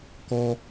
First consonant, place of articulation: velar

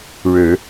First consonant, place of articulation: retroflex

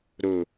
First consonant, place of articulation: alveolar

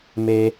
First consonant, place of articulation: labial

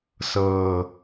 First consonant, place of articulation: alveolar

